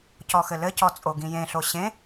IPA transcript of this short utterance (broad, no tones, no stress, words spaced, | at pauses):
cɔxɘlɘcɔ t͡sʼoɡĩjẽɬo ɕẽ